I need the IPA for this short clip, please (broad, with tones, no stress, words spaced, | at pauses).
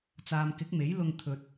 t͡saː˨mkɪ˨˥k̚me˨˥j lʊ˧ŋt̪ʰɵ˨t̚